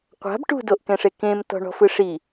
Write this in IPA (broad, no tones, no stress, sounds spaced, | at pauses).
qʷ a̤ b ʈ ṳ d o ʔ k ɛ̃ ʂ e k ẽ m t ɔ̤ ɳ ɔ̤ f ɯ ʂ i